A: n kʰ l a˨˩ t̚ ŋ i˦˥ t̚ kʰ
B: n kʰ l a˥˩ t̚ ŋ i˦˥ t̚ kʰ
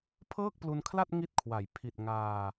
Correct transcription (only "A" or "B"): B